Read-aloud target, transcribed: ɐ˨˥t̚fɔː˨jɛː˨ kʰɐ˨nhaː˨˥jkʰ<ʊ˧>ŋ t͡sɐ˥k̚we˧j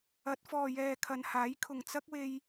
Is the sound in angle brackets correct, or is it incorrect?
incorrect: ʊ˨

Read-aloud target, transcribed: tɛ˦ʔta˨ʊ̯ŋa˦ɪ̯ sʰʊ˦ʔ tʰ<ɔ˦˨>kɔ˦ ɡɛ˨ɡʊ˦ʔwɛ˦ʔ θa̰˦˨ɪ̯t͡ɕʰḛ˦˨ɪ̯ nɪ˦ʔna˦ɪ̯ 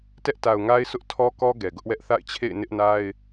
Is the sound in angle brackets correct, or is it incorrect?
incorrect: ɔ˦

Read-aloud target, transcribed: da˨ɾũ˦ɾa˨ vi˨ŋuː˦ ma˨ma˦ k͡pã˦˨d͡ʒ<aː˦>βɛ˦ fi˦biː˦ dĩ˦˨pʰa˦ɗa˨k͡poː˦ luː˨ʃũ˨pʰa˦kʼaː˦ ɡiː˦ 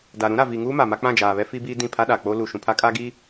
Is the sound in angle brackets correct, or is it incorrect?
incorrect: aː˨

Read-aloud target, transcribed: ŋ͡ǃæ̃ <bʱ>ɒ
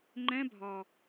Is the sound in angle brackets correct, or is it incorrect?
correct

